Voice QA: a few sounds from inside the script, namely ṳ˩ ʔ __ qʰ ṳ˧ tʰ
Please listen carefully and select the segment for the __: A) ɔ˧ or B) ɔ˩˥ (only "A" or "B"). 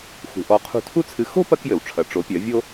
A